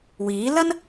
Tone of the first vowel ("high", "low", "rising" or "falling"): rising